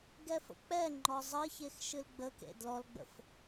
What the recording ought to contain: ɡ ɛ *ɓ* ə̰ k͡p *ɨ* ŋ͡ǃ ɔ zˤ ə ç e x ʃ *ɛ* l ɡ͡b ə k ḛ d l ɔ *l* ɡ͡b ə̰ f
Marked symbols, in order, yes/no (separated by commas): no, no, no, yes